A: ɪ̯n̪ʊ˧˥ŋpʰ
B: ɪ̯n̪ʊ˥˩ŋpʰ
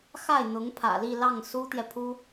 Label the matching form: A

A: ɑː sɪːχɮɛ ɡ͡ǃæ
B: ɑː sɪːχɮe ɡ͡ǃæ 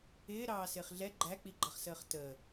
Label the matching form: A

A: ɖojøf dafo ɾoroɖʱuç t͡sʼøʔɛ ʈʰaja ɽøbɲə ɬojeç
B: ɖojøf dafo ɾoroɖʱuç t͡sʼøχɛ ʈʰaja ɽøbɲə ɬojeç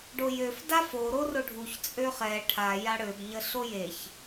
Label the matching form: B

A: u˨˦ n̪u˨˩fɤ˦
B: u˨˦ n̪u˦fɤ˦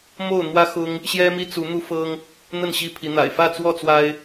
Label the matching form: B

